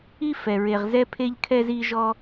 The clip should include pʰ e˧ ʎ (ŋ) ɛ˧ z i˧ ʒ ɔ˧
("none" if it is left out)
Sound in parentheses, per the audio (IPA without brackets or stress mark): kʰ